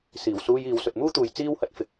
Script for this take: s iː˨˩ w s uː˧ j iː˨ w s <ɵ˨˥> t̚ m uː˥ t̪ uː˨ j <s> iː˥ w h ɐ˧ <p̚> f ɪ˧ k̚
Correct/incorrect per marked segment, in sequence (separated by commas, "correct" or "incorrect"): incorrect, incorrect, incorrect